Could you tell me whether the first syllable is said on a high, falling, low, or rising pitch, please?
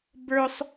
high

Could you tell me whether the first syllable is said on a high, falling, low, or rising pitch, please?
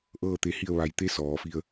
falling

